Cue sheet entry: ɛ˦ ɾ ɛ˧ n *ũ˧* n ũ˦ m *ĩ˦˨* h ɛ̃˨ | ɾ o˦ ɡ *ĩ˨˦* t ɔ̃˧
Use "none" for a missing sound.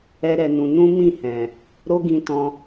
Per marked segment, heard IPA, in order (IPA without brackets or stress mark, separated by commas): ũ˧, ĩ˦˨, ĩ˧